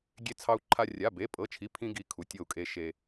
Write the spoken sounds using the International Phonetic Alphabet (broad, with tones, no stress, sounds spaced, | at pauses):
ɡʲ e˥ t͡sʰ ɑ˥ u̯ ǃʰ a˥ rʲ a˧˥˧ b e˧˥˧ pʼ ɤ˧˥˧ t͡ʃʰ i˧˥˧ pʰ ĩ˥ ɡ i˧˥˧ kʰ u˧˥˧ tʲ ɤ˥˨ u̯ kʼ e˥ ʃ e˥